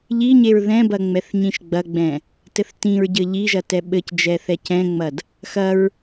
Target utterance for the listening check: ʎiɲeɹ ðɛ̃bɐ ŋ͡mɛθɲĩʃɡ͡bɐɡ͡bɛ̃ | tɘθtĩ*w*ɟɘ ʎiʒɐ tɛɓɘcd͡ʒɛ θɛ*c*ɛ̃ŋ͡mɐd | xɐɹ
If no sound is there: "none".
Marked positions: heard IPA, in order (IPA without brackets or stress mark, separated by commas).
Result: ɹ, c